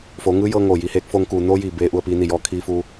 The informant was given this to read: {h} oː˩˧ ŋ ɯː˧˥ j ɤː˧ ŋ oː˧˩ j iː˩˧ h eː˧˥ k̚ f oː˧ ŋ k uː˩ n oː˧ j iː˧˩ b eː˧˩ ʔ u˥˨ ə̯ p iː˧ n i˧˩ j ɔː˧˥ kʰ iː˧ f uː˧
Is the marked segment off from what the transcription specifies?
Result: yes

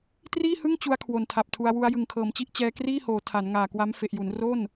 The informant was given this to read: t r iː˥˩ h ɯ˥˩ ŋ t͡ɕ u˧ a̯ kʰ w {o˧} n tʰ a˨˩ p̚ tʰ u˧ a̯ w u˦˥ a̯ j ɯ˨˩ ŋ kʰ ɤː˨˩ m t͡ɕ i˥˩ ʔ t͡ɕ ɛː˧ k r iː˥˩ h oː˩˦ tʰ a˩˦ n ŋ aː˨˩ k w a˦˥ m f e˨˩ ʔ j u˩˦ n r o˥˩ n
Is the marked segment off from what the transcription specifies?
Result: yes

